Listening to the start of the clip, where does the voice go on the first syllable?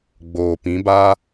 low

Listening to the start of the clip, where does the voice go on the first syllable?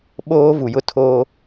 high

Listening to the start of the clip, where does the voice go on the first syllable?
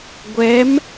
rising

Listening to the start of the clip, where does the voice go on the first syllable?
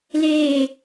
falling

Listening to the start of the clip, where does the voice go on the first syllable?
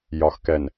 low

